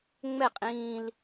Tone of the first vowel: falling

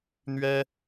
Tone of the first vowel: high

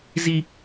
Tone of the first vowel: high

